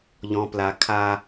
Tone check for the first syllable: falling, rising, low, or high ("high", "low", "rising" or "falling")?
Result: low